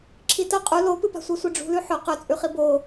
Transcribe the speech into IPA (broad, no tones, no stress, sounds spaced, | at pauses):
ǁʰ i t ɐ qʼ u l o p ɨ p a̤ sʷ i sʷ i ɖ͡ʐ ṳ l ʉ ħ ɵ q ɵ t͡sʼ ʉ χ i b o